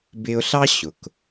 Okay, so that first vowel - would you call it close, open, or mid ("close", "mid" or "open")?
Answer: close